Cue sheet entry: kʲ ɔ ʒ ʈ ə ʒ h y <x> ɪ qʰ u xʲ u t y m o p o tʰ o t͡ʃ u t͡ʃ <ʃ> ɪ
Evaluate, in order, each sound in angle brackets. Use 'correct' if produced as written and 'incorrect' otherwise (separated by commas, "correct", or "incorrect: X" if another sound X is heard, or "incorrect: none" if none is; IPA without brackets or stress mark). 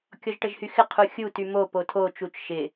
correct, correct